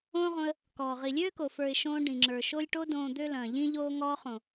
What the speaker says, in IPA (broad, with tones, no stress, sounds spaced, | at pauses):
õː˦ ʁ õ˧ ə̯ | k ɔː˨ ʁ i˨ lʲ øː˦ k o˨ f ə˞˨ ɪ̯ ʃ õː˧ ɖ ĩ˨ ŋ͡ǁ ə˞˨ ʃ o˦ lʲ ʈ o˧ d õː˨ d̪ ø˦ l ɐ̃ː˨ ʎ ĩ˦ ʎ oː˦ ŋ ɔː˧ χ õ˨